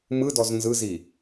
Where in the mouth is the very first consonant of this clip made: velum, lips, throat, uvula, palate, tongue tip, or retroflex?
lips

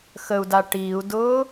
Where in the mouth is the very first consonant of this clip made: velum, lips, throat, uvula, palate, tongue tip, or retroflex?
velum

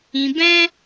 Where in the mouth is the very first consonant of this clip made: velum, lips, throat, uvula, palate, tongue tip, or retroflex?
lips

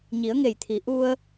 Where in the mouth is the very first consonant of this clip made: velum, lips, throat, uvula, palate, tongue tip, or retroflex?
palate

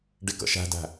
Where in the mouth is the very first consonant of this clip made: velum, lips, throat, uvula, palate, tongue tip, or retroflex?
retroflex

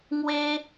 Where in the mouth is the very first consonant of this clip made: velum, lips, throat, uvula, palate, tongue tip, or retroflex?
velum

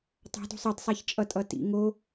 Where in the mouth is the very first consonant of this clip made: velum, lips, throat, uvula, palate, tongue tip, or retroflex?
tongue tip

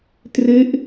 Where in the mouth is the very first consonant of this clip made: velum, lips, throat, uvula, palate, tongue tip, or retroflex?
tongue tip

